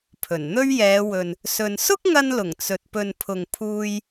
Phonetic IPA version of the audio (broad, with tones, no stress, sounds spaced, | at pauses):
pʰ ɵ˨˩ n n̪ ɵ˥ ɥ j ɛː˨˧ w ɵ˨ n | s ɵ˨ n s ʊ˥ k̚ ŋ ɐ˧ n l ʊ˨˩ ŋ t͡s ɵ˨ t̚ p ɵ˨ n pʰ ʊ˨ ŋ pʰ uː˧ j